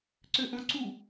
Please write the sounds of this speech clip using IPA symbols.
ǀ ø ʔ õ ǀ u

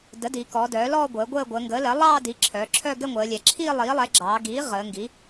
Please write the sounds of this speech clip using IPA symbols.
d ə˩˥ d iː˩˧ k ɔː˩˧ d œː˩˥ l ɔː˥˧ ɡʷ əː˩˥ ɡʷ əː˥˧ ɡʷ əː˩˧ ŋ ɡ əː˩˥ l ɜ˩˥ lˠ ɑː˥˧ d i˩˥ ǁʰ œ˩˧ ǁʰ œ˥˧ ɡ ɛ˥˧ ŋʷ əː˩˧ lʲ ɛ˩˧ ǁʰ iː˥˧ lˠ iː˩˥ lˠ ɛ˩˥ ɡ͡ǁ ɑː˩˧ ɡ iː˩˥ ʁ əː˩˧ ŋ ɡ i˩˥

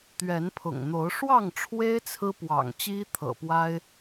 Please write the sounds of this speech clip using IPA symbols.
t̪ ɥ ɛ˨˦ n pʰ ʊ̰˨˩ ŋ n̪ o˨˦ ʊ̯ ʂ w ɑ˥˨ ŋ ʈ͡ʂʰ w e˦ ɪ̯ t͡sʰ ɹ̩˦ p w ɑ̰˨˩ ŋ t͡ɕ i˦ t̪ʰ ɤ̰˨˩ p w a˦ ɪ̯

